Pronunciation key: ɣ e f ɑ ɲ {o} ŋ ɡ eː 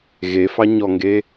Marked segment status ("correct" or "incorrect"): incorrect